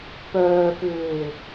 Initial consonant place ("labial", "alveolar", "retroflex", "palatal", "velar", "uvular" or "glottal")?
labial